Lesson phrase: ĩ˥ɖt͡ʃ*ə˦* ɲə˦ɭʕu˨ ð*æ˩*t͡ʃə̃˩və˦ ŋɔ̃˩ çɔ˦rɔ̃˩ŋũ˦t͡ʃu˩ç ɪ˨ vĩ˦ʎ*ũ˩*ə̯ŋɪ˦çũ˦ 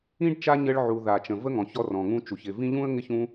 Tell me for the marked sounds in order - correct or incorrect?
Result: incorrect, incorrect, incorrect

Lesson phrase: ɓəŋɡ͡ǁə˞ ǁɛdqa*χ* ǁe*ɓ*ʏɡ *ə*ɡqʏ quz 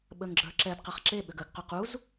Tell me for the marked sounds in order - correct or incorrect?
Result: correct, correct, correct

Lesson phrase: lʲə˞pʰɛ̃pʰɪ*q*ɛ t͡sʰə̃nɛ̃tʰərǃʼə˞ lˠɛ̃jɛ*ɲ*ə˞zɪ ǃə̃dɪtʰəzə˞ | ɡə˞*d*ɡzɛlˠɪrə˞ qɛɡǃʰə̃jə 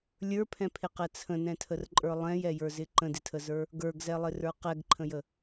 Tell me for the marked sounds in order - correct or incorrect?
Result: correct, incorrect, incorrect

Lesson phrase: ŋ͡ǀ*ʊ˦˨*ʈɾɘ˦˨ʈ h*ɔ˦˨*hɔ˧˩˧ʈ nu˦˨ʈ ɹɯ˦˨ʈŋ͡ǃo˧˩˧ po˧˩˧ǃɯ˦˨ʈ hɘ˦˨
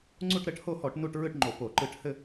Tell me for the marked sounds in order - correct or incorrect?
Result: incorrect, incorrect

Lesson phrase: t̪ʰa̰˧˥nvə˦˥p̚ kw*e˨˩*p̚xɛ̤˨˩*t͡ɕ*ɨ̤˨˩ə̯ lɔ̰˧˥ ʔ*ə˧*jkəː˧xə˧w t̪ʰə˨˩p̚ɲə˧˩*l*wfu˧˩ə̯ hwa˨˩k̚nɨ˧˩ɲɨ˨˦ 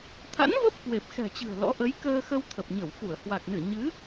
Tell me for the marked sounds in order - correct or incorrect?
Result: correct, correct, incorrect, incorrect

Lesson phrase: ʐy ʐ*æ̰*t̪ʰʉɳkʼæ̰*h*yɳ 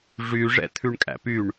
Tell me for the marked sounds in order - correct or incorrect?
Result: incorrect, incorrect

